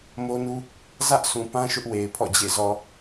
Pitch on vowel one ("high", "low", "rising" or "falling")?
high